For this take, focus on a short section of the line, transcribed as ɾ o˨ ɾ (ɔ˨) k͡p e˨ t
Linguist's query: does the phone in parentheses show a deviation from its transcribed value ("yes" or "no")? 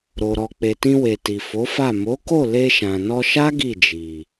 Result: no